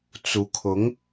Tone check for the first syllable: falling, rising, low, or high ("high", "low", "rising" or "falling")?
rising